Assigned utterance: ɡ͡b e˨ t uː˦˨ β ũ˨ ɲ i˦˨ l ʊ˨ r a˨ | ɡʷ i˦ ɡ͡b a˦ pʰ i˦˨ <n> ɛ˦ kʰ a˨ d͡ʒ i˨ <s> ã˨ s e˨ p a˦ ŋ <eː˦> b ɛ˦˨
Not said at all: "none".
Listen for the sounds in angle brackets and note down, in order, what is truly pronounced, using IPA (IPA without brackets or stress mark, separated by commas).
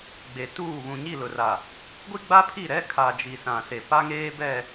ɾ, s, eː˦